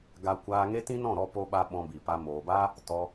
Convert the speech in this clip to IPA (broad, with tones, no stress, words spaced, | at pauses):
ɡa˧ kʷaː˧ŋe˦ tĩ˦nɔ̃˦˨ɾɔ˧ po˦ɓa˦ ɓɔ̃˧bi˨pa˧ moː˨baː˦ | tɔ˧